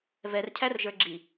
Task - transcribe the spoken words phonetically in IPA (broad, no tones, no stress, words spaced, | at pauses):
vɛrcʰærʒə˞ ɡ͡ǁi